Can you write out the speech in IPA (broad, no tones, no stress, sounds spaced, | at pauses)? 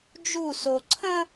d͡ʒ u s o ǀʰ ə̃